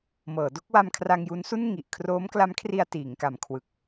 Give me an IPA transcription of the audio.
mɤː˩˦do˥˩k̚wa˧m kʰra˧ŋju˦˥nsu˥˩nŋi˨˩ʔ kʰroː˦˥mkla˦˥mkʰri˧a̯ tiː˩˦ŋka˨˩mkʰwɯ˨˩k̚

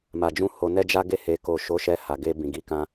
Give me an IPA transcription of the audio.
ma˨d͡ʒũ˧ ho˧nɛ˦d͡ʒa˦ɡe˦˨ he˨ko˨ ʃo˨˦ʃɛ˧ ha˨ɡe˧ bĩ˨ɡi˨˦kã˧

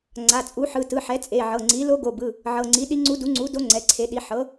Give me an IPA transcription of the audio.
ŋ͡ǀa˩˧˩t͡sʼu˩˥ħɯ˩˧˩ tɯ˩˧˩ħɛ˩˥ t͡sʼe˩˧˩ʕɤ˩˧˩ŋ͡ǀi˩˥ lo˧˥ɡo˩˧˩bɯ˩˧˩ | ʕɤ˩˧˩ŋ͡ǀi˩˥ɗi˧˥ŋ͡ǀu˧˥ du˩˥ŋ͡ǀu˩˥do˧˥ ŋ͡ǀɛ˩˧˩ǀʰe˩˥ɗi˩˥ ħɤ˩˥

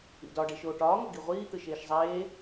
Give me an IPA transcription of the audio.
ḭdɒ ɖeʃoːʈɒː ŋoɡiʁʷiː t̪ɯʃeːʃzˤeː

